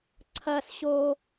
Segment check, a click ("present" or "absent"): present